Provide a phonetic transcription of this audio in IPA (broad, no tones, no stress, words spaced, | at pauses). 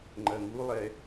ŋ͡ǃɐŋulˠɛ